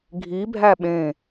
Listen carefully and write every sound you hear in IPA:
ɡʱ i bʱ æ ɓ ẽ

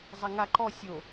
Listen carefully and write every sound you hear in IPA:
zˤ a ŋ a ǃ ɔ sʲ o

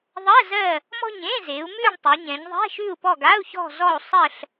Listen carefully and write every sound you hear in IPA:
ðˤ ɜ˧˥˧ z ɜ˦˨ | m ɔ̤˦˨ ɲ ẽ˧˥˧ z e˩˧ u̯ m ʉ˦˨ ɳ tˤ ʉ˩˧ ɲ ɛ̃˩˧ ɲ ðˤ ɛ̤˧˥˧ ʃ ʉ˦˨ u̯ p ɔ˦˨ ɡ a˧˥˧ u̯ ç ɔ̤˦˨ z ɔ˦˨ u̯ sˤ ɜ˦˨ ɬ

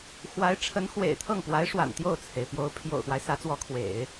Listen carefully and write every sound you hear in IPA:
x w a˧˥ ɪ̯ ʈ͡ʂʰ ə˧˥ n x w ḛ˨˩ ɪ̯ t̪ʰ ɤ˥˩ ŋ p w a˧˥ ɪ̯ ʂ w a̰˨˩ n t̪ j o˥˩ ʊ̯ t͡sʰ e˩ ɪ̯ p j o˧˥ ʊ̯ pʰ j o̰˨˩ ʊ̯ x w a˦ ɪ̯ s ä˧˥ t͡s w ɔ˧˥ kʰ w ḛ˨˩˦ ɪ̯

